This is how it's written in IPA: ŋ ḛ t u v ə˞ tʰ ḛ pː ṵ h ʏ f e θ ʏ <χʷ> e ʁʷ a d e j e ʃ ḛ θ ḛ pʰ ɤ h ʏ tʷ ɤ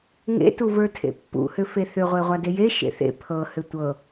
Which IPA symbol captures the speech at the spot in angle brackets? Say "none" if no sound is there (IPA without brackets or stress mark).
ʁʷ